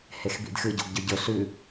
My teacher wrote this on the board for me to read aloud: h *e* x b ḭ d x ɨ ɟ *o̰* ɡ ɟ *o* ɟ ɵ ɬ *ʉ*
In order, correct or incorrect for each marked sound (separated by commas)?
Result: correct, correct, incorrect, correct